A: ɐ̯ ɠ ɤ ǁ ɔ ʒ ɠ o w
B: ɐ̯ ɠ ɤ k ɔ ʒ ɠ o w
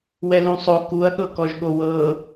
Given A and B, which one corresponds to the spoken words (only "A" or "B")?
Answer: B